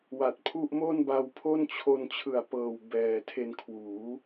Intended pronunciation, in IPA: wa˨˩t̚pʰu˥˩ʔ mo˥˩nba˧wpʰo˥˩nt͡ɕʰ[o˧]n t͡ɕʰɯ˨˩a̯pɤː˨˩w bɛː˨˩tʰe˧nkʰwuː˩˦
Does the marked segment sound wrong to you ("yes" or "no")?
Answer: no